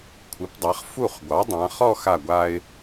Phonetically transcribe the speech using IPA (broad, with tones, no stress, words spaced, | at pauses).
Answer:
kʷʰɨ˩˧pdˤa˩˧χ fu˧˩χɡʷɑ˩˧ dˤã˩˧χɔ˥˧xa˧˩ɡʷa˧ɪ̯